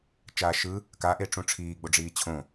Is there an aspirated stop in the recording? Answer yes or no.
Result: yes